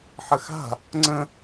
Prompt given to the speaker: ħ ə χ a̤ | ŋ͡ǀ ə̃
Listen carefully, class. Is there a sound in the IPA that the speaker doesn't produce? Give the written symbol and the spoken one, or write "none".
χ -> x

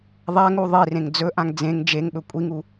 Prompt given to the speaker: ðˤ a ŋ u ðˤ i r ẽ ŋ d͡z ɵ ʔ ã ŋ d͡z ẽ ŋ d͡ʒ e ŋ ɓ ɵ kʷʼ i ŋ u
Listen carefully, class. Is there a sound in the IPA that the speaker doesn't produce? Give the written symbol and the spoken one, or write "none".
none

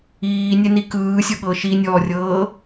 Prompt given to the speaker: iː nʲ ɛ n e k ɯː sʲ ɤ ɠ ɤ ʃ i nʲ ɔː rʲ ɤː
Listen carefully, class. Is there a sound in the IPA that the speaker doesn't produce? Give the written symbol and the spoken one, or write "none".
e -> i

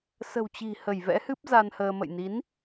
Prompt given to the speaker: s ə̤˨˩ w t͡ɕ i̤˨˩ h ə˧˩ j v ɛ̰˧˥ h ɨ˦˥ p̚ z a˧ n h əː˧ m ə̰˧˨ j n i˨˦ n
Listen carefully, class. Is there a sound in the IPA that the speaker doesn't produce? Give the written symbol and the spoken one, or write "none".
none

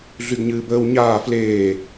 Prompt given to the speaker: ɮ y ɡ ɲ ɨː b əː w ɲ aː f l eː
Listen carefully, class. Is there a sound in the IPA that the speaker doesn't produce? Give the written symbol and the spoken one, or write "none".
none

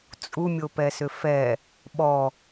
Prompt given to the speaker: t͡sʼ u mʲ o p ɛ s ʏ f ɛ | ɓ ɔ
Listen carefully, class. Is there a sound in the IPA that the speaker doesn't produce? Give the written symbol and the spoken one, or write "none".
none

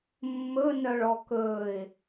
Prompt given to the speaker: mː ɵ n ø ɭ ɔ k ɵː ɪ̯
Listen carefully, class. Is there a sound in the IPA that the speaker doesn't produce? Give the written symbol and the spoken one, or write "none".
ø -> œ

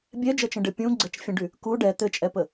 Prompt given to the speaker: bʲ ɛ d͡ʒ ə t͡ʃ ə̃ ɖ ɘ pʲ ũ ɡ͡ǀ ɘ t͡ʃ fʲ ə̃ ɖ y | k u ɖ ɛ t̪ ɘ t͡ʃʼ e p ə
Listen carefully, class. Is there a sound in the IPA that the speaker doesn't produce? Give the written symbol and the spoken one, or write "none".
e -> ɛ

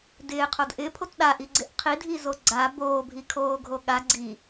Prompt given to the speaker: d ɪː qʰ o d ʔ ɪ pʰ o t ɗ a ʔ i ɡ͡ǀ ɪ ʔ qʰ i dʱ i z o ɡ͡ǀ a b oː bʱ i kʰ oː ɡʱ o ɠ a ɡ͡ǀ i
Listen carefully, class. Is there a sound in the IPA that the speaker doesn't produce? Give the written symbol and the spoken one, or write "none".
none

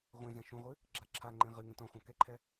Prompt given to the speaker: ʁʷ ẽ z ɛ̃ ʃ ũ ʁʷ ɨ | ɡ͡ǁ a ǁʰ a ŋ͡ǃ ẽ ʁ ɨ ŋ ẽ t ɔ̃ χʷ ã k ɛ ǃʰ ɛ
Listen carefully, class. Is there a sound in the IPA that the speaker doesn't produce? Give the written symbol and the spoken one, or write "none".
none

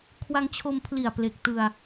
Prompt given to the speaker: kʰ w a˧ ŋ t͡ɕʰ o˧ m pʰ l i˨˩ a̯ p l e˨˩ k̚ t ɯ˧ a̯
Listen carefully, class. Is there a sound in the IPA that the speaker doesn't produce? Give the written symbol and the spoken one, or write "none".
none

